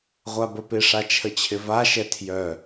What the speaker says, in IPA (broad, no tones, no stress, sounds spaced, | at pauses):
ʁʷ a b ə p ɪ ʂ a t͡ʃʰ ə t͡ɕʰ ɪ v a ʃ ɛ tʰ j œ